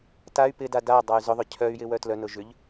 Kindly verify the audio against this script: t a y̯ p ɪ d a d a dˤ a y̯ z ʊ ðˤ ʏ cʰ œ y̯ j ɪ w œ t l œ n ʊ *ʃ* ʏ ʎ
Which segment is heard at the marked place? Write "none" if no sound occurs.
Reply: ʒ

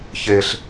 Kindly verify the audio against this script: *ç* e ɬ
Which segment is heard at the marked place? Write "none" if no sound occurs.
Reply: ç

